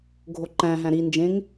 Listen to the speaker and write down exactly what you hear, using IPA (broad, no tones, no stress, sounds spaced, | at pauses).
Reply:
ɡʱ o ǃ æ̃ ɦ æ̃ ɾ i n d͡ʒ ẽ ŋ